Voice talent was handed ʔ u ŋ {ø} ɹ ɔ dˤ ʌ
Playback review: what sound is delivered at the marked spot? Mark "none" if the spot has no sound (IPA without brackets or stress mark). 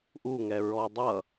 ɛ